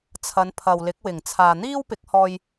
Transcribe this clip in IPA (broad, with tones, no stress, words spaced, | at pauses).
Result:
t͡sʰɐ˨˧npʰɐ˨wlɪ˨˥k̚ wɪ˨˩ŋt͡sʰaː˨n̪iː˥w pɪ˨˥k̚hɔː˧j